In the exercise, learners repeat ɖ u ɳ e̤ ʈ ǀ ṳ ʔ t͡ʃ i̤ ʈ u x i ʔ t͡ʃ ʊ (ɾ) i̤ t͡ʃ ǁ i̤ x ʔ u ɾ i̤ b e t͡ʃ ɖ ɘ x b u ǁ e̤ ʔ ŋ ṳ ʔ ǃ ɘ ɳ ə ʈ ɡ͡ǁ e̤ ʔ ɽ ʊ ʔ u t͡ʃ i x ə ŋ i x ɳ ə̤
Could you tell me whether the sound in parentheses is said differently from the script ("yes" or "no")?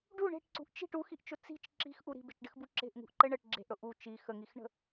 yes